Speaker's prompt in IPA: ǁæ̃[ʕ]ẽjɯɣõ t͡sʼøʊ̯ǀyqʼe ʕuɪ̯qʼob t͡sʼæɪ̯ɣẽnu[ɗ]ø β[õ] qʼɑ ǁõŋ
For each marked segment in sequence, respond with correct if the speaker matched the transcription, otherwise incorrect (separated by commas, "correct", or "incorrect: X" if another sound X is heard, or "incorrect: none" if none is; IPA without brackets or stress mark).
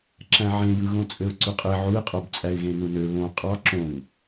correct, incorrect: n, correct